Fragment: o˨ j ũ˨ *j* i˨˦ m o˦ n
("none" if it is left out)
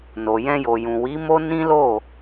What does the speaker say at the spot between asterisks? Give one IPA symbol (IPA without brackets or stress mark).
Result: w